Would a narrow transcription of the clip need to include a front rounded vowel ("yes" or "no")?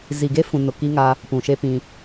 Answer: no